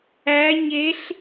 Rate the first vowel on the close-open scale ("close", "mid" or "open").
open